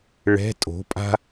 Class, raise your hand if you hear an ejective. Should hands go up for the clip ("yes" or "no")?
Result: yes